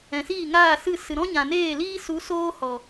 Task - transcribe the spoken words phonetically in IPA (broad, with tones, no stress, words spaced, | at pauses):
ɛ̃˨siː˦˨ŋaː˦˨ sɨ˦˨ sɨ˨ɾɔ̃˦ɲã˨neː˦˨ liː˦su˨˦ soː˦hɔ˨